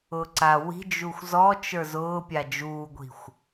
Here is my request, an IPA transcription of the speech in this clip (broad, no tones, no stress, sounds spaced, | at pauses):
ʊː ǀ a w i̤ d͡ʒ u xʷ z ɔ t͡ʃ ə˞ z ʊː pʲ a d͡ʒ uː ɡʷ i̤ xʷ